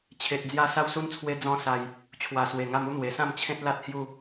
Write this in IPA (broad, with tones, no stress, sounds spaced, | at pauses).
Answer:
t͡ɕʰ e˨ t̚ d͡z j a˧ s a˦ w s u˦ n t͡sʰ w e˦ d͡z ɔ̃˦ s a˧ j | t͡ɕʰ w a˨˩ s w e˨˩ ŋ a˧ m u˥˧ n̪ w e˨˩ s ã˥˧ m t͡ɕʰ ẽ˦ t̚ l a˦ t̚ h j u˥˧